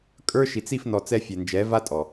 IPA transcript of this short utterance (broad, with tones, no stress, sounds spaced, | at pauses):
kʼ ə˞˦ ʃ i˨ t͡s i˦˨ f n ɔ˨ t͡s ɛ˧ fʲ ɛ˨ n d͡ʒ ɛ˨˦ v a˦ tʼ ɔ˨